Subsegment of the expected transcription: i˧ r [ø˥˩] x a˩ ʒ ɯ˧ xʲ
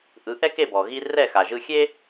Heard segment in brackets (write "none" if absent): ɛ˥˩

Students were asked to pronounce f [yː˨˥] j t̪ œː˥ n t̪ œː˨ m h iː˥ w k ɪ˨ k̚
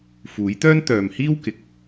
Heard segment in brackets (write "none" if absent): uː˨˥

